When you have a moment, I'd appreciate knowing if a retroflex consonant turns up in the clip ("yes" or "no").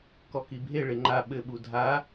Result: yes